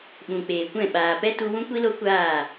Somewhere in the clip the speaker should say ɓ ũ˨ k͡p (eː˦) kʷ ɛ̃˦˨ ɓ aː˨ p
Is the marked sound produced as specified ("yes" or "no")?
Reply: no